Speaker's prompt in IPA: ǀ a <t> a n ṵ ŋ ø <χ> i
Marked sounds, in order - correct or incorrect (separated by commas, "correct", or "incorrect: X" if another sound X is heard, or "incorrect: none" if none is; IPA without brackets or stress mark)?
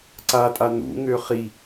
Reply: incorrect: tʼ, correct